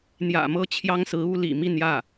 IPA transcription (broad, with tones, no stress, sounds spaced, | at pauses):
n̪ j ä̰˨˩ m ɤ˥˩ t͡ɕʰ j ɑ˥ ŋ s ɹ̩˧˥ u˥ l ḭ˨˩ m i˥˧ n j ä˥˩